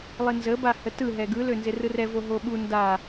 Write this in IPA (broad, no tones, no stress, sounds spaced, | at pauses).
lˠ ɪ n z ə b a h ə t ɯ ɦ ɛ ɡ ɯ l ø n z ɪ r ɯ r ɛ v o ɦ o ɓ u n d a